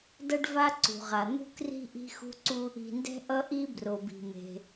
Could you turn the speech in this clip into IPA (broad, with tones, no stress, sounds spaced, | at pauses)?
d ʌ˥ ɖ v a˥ ǀ ṳ˩ ʁ a˩ n̪ ṳ˥ k r i̤˥ ʔ i̤˥ x ṳ˥ ǀ u˥ | i̤˩ n d ɛ̤˥ ʔ ʌ˥ ʔ i˥ b r o˩ b i̤˩ m e̤˩